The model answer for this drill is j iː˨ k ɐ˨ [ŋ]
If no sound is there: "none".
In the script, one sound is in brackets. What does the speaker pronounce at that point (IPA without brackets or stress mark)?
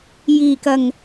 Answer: ŋ